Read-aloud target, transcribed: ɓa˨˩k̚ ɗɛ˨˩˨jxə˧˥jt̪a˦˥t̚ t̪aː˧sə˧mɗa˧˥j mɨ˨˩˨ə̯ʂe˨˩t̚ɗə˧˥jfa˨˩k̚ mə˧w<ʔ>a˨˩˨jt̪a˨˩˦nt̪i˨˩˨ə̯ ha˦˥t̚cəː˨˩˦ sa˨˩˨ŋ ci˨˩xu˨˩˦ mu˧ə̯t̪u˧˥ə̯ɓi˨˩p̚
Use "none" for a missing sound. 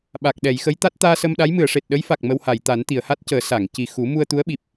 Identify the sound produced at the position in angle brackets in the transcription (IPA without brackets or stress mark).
h